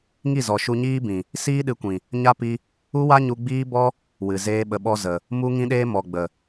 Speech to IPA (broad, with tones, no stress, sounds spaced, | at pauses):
ŋ i˦˨ z ɔ˨ ʃ u˧ ɲ iː˦ b ĩ˨ | s iː˦ ɗ ɨ˨˦ kʷ ĩ˨ | ɲ a˦ p i˧ | u˦ w a˦ ɲ u˧ ɡ͡b iː˦ b ɔ˦ | w ɨ˨ z eː˦ ɓ ə˧ ɓ ɔ˦ z ə˨ | m u˧ ŋ ĩ˧ ɗ eː˧ m ɔ˨ ɡ͡b ə˨